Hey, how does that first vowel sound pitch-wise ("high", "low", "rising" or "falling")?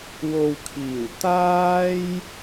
low